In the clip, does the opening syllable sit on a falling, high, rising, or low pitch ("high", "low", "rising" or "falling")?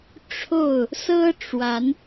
falling